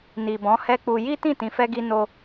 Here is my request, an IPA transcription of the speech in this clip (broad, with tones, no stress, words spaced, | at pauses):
ni˨bɔ̃˨˦hɛ˦k͡pu˧ ji˦ tĩ˦˨tĩ˨fɛ˧ɡi˧ no˧